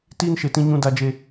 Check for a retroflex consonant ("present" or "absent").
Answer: absent